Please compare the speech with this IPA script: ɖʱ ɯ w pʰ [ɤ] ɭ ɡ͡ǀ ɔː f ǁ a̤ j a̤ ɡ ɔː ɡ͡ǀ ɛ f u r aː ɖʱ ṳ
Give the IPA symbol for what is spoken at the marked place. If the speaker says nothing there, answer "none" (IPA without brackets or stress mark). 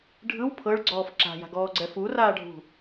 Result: ɤ